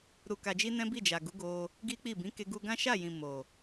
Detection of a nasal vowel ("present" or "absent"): present